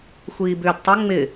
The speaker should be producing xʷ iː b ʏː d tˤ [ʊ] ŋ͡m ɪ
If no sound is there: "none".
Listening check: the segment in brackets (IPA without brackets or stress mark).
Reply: ʊ